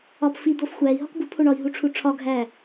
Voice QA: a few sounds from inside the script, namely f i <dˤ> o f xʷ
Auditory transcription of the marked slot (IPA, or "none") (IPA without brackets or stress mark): d̪